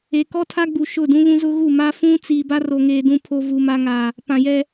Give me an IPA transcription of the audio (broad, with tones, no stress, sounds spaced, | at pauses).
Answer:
e˨ k ɔ˦ tʰ a˦ ɡ͡b u˨ ʃ ʊ˦˨ d ũ˦ β ũ˦ z ʊ˦ ɣ u˦˨ m a˦ f ũ˦ t͡s i˨ b a˦ r o˨ ŋ eː˨ d ũ˨ pʰ o˨ v u˨ m a˦ ŋ aː˨ | p ã˨ j ɛ˦